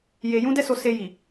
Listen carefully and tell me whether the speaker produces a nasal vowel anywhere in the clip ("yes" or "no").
yes